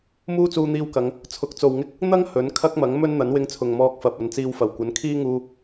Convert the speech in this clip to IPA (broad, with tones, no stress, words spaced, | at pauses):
muː˥t͡suː˧n̪iː˧wkɐ˨˧ŋ | t͡sʰʊ˨˥k̚t͡so˨wŋɪ˥k̚ | n̪ɐ˥ŋ hɵ˨˥nkʰɐ˥k̚mɐ˨˥ŋ mɵ˥n n̪ɐ˨˥nwɪ˧ŋt͡sʰʊ˨ŋ mɔː˧k̚fɐ˨p̚ ɐ˨˧nt͡siː˧wfɐ˨˩w kʷɐ˨˥nkʰiː˥ŋuː˧